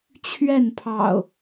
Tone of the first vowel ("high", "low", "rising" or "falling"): falling